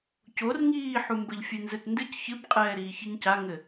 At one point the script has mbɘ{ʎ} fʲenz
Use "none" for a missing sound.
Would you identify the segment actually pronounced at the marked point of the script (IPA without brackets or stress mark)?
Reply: ʎ